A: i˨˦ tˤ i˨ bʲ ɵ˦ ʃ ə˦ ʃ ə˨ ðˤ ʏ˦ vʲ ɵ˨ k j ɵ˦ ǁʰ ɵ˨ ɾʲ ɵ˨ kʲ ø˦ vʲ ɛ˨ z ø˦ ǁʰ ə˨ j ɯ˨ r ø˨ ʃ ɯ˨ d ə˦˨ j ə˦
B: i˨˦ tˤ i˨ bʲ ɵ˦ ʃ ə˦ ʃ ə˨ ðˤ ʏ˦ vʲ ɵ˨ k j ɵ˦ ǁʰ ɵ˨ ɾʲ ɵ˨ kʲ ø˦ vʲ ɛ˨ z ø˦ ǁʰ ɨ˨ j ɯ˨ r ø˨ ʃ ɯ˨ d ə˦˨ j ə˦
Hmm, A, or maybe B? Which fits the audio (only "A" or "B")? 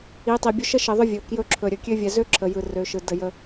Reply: A